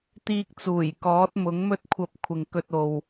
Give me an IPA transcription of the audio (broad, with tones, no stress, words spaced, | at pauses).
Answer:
t̪iː˧k̚t͡suː˨˩j kɔː˨˥t̚mʊ˨˥ŋmɵ˥t̚kʷʰɐ˧p̚ kʷʰɪ˨ŋkɵ˧t̚o˨w